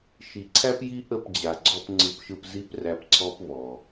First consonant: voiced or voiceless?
voiceless